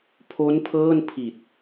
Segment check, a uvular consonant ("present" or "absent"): absent